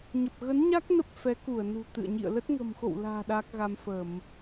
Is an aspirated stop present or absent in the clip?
absent